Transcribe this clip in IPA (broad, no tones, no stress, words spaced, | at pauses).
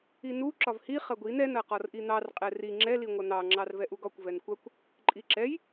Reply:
inu ǁɒvhi χɐɡʷin ɛn ɐqɒrʔin̪ɑr qʼɛri ŋ͡ǁɛ liŋʷɐn̪ɑ ŋ͡ǁɑrvɛʔuɡɒkʷ vɛnkʷɐkʷ | ǃʼiǁɛj